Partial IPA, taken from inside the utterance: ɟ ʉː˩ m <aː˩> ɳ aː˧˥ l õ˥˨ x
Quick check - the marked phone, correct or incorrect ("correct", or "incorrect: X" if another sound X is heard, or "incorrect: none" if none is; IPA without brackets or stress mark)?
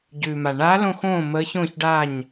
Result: incorrect: a˩